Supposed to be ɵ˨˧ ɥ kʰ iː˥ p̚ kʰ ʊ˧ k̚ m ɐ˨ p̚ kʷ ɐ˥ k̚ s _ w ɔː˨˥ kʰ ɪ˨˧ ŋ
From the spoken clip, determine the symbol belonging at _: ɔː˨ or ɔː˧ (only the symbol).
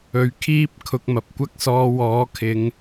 ɔː˧